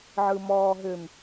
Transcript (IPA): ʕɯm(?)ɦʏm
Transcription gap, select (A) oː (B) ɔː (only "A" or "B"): B